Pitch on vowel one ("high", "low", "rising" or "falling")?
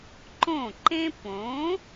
falling